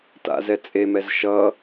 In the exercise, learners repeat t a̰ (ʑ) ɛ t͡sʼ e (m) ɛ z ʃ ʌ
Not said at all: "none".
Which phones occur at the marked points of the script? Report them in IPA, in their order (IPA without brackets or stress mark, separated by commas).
z, m